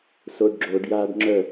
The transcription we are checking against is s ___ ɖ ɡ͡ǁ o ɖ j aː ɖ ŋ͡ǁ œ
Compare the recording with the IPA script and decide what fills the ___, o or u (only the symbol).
o